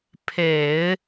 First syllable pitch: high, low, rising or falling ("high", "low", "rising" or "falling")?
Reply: low